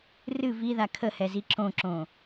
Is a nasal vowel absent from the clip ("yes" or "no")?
no